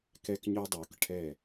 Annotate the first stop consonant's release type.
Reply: plain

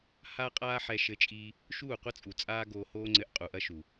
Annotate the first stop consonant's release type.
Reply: ejective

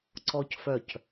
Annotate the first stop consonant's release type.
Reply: click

